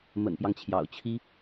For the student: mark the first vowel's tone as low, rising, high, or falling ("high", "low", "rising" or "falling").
low